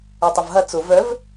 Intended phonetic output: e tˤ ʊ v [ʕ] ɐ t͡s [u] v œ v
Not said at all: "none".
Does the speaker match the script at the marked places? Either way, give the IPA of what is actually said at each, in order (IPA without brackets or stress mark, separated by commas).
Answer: ɦ, ʊ